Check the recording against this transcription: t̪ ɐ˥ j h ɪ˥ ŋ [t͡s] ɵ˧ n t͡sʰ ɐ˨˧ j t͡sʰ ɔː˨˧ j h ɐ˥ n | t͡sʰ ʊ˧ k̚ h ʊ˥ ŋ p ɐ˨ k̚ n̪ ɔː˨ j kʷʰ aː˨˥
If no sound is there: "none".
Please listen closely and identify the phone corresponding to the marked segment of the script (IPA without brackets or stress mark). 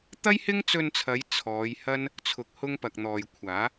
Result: t͡s